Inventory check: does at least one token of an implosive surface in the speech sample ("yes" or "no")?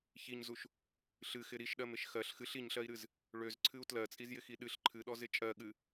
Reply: yes